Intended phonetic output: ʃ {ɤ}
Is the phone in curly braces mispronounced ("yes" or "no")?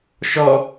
yes